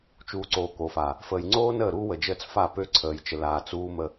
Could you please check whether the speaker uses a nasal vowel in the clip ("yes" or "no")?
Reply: no